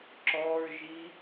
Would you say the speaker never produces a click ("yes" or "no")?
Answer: no